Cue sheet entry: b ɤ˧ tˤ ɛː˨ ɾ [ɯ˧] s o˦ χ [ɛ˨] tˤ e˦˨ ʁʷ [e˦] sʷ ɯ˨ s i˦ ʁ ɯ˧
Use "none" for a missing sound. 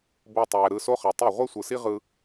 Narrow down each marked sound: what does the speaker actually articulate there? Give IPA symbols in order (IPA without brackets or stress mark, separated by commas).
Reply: ɯ˧, ɛ˨, e˦